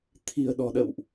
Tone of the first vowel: low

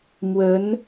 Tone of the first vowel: rising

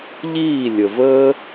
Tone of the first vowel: falling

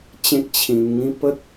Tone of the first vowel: high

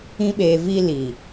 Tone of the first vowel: high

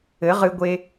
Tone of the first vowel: rising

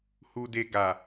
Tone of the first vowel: low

